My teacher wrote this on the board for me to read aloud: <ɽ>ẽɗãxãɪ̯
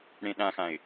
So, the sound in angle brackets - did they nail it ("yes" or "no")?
yes